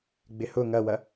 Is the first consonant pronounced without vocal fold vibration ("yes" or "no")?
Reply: no